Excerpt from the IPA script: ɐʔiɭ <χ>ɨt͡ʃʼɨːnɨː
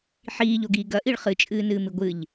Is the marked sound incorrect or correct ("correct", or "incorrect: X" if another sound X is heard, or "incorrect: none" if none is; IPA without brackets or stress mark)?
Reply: correct